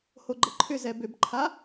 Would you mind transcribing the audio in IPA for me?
hoɡ͡ǃəǃʰʏ zɛbʏbǃʰa

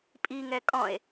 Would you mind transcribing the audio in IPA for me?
pʼiŋɛ kʼɔ̃e̯

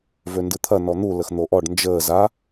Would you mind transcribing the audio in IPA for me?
vøndɨt̪ʰɐ nɔn̪u ləxn̪oʔɔɖ nd͡ʒəː za

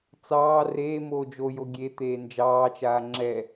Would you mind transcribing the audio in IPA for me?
t͡sɑː reːmoː d͡ʒojo ɡʲet̪eː nd͡ʒɑːt͡ʃaː ŋ͡ǁɛ

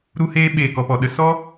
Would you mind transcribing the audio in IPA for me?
ɾu˦heː˦ ɓeː˦˨kɔ˧pɔ˨ɗə˦ sɔ˦

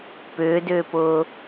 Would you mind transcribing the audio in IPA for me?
pʏːdʏːpʊː

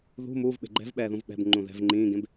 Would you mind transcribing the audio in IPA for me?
ðṳ muːv ɓe̤ɡ͡ǃɛ̤vɓɛː ðũvɓɛ̤bŋ͡ǃũ ðɛ̤v ŋ͡ǃĩːɡẽb

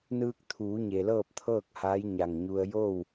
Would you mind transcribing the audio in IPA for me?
nɯː˧k̚t̪ʰuː˩˧ ɲe˩lɤː˥˨p̚t̪ʰɤː˥˨k̚ haː˧˥jɲa˧˩ŋɲu˧ə̯ jo˥˨w

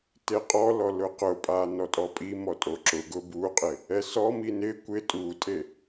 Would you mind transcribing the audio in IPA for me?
teqʼɔlɔ lʊqʊpʼa nɔtʼɔpʼimɔ tʼoǁʊɡʊ buqʼɪ | ɛsɔmi nɪ kʷɪ tʼutʼe

